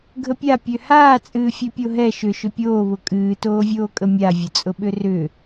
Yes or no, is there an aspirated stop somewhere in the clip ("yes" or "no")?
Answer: no